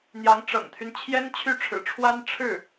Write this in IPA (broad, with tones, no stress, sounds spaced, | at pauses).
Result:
n̪ j ɑ˧˥ ŋ ʈ͡ʂ ɤ̰˨˩ ŋ t̪ʰ y˦ n t͡ɕʰ j ɛ˥ n t͡ɕʰ y˥˩ ʈ͡ʂʰ ɻ̩˨˩ ʈ͡ʂʰ w a˥ n ʈ͡ʂʰ ɻ̩˥˩